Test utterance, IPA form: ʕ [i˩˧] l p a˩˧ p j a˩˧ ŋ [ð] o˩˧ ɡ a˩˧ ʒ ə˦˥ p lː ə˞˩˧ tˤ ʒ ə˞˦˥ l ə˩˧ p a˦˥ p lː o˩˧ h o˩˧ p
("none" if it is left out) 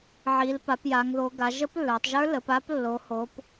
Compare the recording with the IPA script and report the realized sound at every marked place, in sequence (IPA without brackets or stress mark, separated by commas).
i˩˧, ð